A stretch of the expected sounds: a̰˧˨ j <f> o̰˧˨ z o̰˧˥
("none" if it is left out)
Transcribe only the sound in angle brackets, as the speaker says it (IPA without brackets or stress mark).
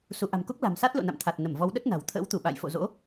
f